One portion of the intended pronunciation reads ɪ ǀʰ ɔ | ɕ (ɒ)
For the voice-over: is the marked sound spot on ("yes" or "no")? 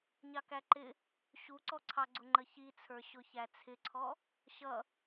no